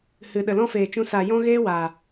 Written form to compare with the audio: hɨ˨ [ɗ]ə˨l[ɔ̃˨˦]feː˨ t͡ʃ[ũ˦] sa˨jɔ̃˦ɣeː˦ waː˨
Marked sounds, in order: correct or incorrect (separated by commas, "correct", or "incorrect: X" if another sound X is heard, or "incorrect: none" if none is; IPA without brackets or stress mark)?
correct, incorrect: ɔ̃˦, incorrect: ũ˧